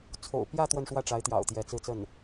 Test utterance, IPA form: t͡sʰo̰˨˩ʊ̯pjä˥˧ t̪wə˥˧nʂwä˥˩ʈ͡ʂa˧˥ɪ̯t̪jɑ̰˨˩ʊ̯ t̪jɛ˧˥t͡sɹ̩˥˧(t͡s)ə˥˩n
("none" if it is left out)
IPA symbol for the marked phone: t͡s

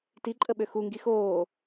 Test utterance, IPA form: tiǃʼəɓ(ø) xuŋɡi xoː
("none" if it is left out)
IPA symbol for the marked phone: ø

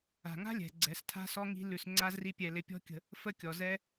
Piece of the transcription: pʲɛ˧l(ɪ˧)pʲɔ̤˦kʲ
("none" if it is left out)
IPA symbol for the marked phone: ɪ˧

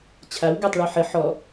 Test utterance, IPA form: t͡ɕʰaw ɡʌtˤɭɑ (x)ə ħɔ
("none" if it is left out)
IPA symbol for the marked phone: ħ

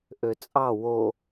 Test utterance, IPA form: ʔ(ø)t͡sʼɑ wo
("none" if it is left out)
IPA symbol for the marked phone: ø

